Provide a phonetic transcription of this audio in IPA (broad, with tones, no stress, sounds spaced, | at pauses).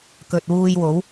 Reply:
k ɵ˨ t̚ w uː˧ j w o˨˥ w